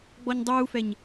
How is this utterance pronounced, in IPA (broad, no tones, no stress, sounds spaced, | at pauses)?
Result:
ɡ͡b ɔ ɲ dˤ uː f ɛ ɲ